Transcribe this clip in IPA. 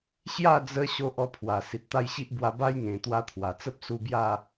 ɕ j a˥˧ d͡z ə˧ ɕ o˦ ʔ ɔ˥˧ pʰ w a˨˩ s i˨ t̚ t̪ a˥˧ j ɕ i˦ ʔ b w a˧ b a˦ j ŋ ẽ˨˩ t̪ w a˧ t̪ʰ w a˨˩ t͡s ə˦ p̚ s u˧ b j a˥˧

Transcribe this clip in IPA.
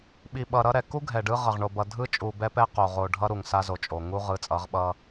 ɓ i˨ ɓ ʌ˨ ɾ ʌ˦ ɾ ɛ˨ k u˦ ɡʱ ɛ˨ ɖ ɯ˦ ʁ ʌ˨ ʁ ɳ o˨ b ʌ˨ dʱ ɯ˦ t͡ʃʼ u˨ b ɛ˦ p ɛ˦ q o˨ ʁ o˨ ɖʱ ʌ˦ ɾ u˨ ŋ s a˦ z o˨ t͡ʃʼ o˨ ŋ u˦ ʁ ɯ˨˦ t͡sʼ ʌ˨˦ ʁ ɓ ʌ˦

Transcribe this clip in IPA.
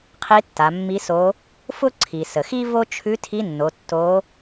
qʰ i˧˥ tː a˩˧ mː i˧˥ s o˧˥ | f ʊ˥ ǀʰ i˩ s ə˩ x i˥ v o˥ t͡ʃʰ ʉ˧˥ tʰ i˧˥ nː o˩˧ tː o˧˥

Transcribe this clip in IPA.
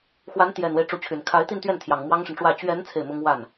x w a˧˥ n t̪ j ɛ˨˩ n w e˦ ɪ̯ ʈ͡ʂ u˧˥ t͡ɕʰ y˨˩ n kʰ a˧˥ ɪ̯ t̪ i˥˧ n t̪ ɥ ɛ˥˩ n t̪ʰ j ɑ˨˩ ŋ m w ɑ˥ ŋ ʂ ə˨ n ʈ͡ʂ w ä˥˩ t͡ɕ ɥ ɛ˧˥ n t͡sʰ e˥˩ ɪ̯ m ʊ˥ ŋ w a˥˩ n

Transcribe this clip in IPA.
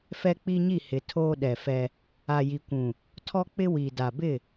f ɛ˦ k͡p i˦ ɲ i˦˨ h ɪ˨ tʰ oː˦ ɗ ɛ˨ f ɛ˦ | a˨ j i˨ kʷ ũ˨ | tʰ ɔ˦ k͡p ɪ˦ w i˨ d a˨ b ɪ˦˨

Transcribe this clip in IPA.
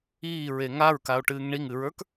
iː ɹ e ŋ a ɹ k a o̯ ʈ ɨː ŋ ɳ i ŋ ɨ ɹ ə˞ k

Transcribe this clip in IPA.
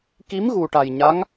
k i˧˥ m ɣ u˨˩ ʈ a˨˩ j ɲ a˧˥ ŋ

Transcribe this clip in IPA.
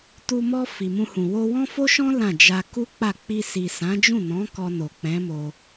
t u˧ m ɔ˧ f i˨ m ũ˧ h ũ˨ w o˧ w ɔ̃˦ f o˦ ʃ ɔ̃˦ l ã˦˨ d͡ʒ a˧ k u˦ k͡p a˦˨ k͡p i˧ s i˨ s ã˨˦ d͡ʒ ũ˦˨ n ɔ̃˨˦ k ɔ˧ n o˨ k͡p ɛ̃˨˦ m o˧

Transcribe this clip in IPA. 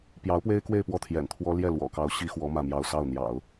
p j ɑ˧˥ ʊ̯ p w e˥ ɪ̯ k w e˥˧ ɪ̯ p w ɔ˥˩ t̪ʰ j ɛ̰˨˩ n t̪ʰ w ɔ˥ l j ɛ˥˩ l w ɔ̰˨˩ k ɑ˧˥ ʊ̯ ɕ i˥ x w ɔ˧˥ m ä˥˧ m j ɑ˥˧ ʊ̯ s ɑ˥˩ ʊ̯ n̪ j ɑ̰˨˩˦ ʊ̯

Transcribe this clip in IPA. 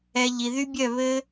ɛ˧ ʎ i˨ ð y˦ bʲ œ˦˨ β ɘ˦

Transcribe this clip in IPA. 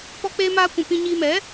p ɔ˦ k͡p eː˦ m aː˦ kʷ ũ˧ p ĩ˧ ɲ iː˧ m ɛ˨˦

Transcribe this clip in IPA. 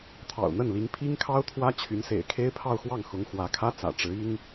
t̪ʰ ɑ̰˨˩ ʊ̯ n̪ ə˥˩ n l i˧˥ ŋ pʰ i˥ ŋ kʰ ɑ˥ ʊ̯ t̪ʰ w ä˥ t͡ɕʰ y˧˥ n s ḛ˨˩ ɪ̯ kʰ e˥ ɪ̯ pʰ ɑ˥˧ ʊ̯ x w ɑ˥˩ ŋ x ʊ˧˥ ŋ x w ä˧˥ kʰ ä˥ t͡s ä̰˨˩ ʈ͡ʂ ɻ̩˧˥ i˥ ŋ

